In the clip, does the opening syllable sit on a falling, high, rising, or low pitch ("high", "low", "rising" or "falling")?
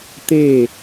falling